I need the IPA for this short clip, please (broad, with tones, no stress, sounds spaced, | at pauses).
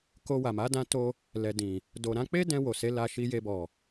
k o˧ w a˨ m a˨˦ d ã˧ t o˧ | l ɛ˨ d ĩ˨ | d o˨ ɾ ã˧ k͡p e˦ d ɛ̃˧ w o˨ s e˨˦ l a˧ ʃ i˧ j e˧ b ɔ˨